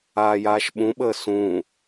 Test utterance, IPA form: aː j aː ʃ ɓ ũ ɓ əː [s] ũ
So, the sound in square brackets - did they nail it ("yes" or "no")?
yes